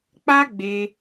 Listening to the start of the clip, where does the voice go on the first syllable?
high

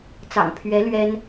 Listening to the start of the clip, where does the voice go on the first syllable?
low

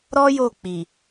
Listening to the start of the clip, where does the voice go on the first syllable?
high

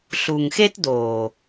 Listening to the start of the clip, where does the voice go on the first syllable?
low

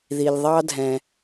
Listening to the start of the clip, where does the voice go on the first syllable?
low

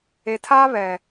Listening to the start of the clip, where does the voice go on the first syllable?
low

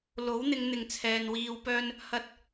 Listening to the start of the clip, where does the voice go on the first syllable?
rising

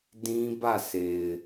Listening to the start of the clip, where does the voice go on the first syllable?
high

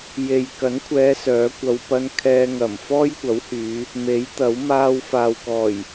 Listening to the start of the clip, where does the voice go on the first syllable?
low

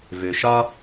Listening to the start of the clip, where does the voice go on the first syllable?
high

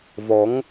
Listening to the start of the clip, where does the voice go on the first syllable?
rising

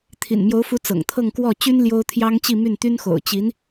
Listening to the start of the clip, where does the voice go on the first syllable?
low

